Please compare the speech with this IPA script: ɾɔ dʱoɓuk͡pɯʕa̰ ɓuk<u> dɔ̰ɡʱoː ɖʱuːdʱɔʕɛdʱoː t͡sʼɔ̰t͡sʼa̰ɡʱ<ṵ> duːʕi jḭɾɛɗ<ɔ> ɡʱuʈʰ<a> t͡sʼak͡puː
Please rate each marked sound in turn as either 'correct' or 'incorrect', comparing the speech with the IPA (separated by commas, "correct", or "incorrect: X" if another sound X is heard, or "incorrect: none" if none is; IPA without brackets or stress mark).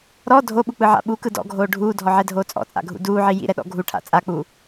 incorrect: ɯ, correct, incorrect: ɔ̰, incorrect: a̰